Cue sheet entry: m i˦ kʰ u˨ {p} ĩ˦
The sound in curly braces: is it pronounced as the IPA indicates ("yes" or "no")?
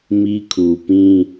yes